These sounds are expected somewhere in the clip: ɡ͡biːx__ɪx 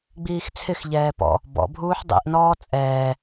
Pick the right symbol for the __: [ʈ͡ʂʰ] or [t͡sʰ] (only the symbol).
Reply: t͡sʰ